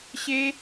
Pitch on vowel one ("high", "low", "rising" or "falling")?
high